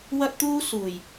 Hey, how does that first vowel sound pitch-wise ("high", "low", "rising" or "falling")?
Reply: high